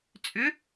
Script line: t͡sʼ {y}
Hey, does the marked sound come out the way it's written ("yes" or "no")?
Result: no